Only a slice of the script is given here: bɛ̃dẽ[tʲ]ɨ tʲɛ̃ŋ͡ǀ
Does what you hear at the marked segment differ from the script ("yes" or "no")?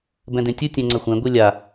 no